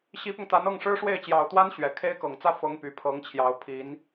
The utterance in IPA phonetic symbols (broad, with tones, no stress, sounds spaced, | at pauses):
ɕ i˧˥ p ʊ˧ ŋ t̪ a˧˥ n ɤ˥˩ ŋ ʂ ɻ̩˥ ʂ w e˥˩ ɪ̯ t͡ɕ j ɑ˨˩ ʊ̯ t̪ w a˥ n ɕ ɥ ɛ˨˩ kʰ e˥ ɪ̯ k ɤ˨˩ ŋ t͡s ä˥˩ f ɤ˧˥ ŋ p y˨˩ pʰ ɤ˧˥ ŋ t͡ɕʰ j ɑ˧˥ ʊ̯ pʰ i˧˥ n